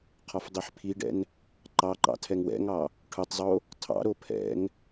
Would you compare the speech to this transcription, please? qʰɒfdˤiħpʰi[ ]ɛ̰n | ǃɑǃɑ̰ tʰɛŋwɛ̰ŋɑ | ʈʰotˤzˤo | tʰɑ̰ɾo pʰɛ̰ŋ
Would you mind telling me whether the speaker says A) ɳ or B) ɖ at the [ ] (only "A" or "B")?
B